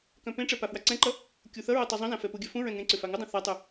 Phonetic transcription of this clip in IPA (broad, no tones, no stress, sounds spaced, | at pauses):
k œ̃ p ẽ ʈ͡ʂ ɛ p a f w a ǀ ɛ̃ ǃ ʌ | kʲ u θ ʌ ɹ o tˤ ɛ zˤ ũ z ã f ɛ p u ɡʲ œ f ũ ɹ ɛ̃ ŋ ẽ ǀ ʏ f a ŋ ʏ dˤ ũ θ a tˤ u